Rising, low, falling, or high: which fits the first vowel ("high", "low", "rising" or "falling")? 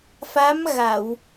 rising